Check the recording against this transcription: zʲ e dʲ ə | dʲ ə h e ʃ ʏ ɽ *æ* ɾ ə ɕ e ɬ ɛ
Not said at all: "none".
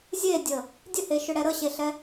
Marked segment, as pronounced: ɛ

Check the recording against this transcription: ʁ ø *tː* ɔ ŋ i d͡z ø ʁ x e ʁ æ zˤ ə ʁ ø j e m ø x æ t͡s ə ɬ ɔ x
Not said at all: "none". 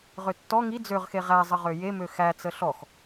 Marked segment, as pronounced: tː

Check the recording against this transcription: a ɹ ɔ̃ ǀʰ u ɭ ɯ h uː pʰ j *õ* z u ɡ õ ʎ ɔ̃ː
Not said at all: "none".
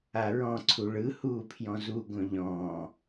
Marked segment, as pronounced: ɔ̃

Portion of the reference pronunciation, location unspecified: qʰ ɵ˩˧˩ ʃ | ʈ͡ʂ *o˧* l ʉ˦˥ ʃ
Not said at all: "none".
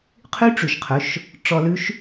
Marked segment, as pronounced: ɔ˧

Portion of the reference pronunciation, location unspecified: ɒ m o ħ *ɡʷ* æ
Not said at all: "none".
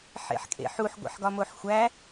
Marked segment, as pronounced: xʷ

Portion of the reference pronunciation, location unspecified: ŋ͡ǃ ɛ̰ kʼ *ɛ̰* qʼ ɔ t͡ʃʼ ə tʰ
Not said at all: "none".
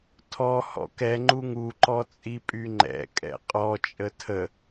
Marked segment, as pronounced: ɛ̰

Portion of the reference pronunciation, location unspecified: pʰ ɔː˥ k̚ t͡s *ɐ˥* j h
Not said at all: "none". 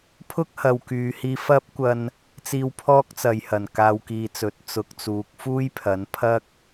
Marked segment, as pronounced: ɐ˨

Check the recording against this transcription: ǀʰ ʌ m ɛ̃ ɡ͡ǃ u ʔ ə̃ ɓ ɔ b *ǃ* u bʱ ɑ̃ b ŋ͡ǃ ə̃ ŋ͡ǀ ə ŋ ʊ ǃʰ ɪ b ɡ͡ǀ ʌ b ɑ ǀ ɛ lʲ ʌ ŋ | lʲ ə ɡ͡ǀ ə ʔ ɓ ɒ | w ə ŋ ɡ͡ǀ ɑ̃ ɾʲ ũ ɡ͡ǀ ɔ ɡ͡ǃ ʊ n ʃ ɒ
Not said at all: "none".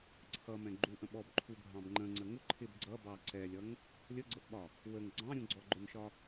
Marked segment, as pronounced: ǃʰ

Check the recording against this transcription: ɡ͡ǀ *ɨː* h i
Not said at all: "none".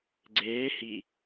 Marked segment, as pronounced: eː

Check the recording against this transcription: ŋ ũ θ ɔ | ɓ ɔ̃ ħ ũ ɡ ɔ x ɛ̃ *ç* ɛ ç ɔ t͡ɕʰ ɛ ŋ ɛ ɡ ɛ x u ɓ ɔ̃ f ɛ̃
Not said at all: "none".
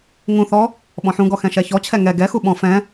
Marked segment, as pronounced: ʃ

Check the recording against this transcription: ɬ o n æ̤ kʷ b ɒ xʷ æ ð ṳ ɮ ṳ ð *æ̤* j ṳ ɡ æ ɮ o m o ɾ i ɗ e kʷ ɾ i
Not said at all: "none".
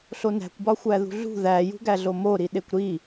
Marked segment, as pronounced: æ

